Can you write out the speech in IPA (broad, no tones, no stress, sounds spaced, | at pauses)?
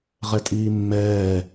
ʁ ɛ tʼ iː mː ɛː